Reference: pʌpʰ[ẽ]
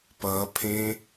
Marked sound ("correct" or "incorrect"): correct